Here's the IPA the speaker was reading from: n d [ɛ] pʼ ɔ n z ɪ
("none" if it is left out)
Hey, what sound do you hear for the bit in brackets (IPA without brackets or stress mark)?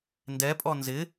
ɛ